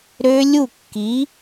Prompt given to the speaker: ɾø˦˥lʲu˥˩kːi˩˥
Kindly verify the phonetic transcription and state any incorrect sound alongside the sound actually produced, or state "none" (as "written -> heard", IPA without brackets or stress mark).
none